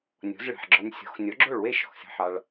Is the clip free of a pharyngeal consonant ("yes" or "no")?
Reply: no